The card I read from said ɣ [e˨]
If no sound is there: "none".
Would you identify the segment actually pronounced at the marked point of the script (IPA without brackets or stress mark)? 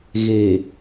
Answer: eː˨